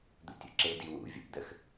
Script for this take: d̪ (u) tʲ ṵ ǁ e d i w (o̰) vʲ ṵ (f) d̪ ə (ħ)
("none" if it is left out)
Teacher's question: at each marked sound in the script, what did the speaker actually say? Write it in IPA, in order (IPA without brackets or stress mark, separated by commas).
ṵ, ṵ, p, x